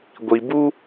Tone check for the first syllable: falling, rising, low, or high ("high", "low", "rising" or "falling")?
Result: low